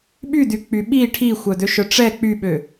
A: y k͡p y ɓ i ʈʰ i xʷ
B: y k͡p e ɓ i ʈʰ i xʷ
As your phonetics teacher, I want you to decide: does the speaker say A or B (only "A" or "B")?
A